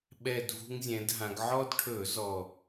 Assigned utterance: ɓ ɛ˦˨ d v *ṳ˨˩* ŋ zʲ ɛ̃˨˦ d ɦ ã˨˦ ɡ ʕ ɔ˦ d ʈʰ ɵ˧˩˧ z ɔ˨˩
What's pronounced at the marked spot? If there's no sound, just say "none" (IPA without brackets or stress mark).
ṳ˦